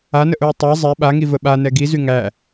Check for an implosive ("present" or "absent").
present